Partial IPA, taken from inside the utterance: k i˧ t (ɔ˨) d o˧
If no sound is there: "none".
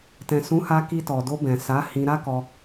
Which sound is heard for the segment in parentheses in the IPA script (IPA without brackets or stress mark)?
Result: ɔ˨